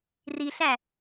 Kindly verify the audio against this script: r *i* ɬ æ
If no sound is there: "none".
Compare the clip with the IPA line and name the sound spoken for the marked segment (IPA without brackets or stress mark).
i